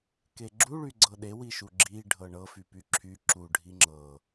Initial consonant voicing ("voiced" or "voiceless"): voiceless